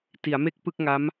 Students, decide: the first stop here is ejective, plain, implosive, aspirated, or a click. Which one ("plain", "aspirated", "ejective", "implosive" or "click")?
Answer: plain